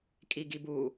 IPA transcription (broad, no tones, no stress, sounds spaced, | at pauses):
kʼ i ɡ i b u